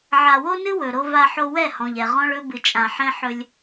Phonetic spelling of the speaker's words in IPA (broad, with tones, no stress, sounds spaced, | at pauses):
ʕ a˨ w o˦ n ɨ˦ w ɵ˨ ɾ o˦ v a˦ ħ o˦ w ɛ˦˨ h ɔ̃˨ ʎ ɛ˨ ʁ ɔ̃˦ ɭ ɵ˦ b ɨ˨ t͡ʃʼ ã˨ ħ ɛ̃˦ ħ ɵ˦ lʲ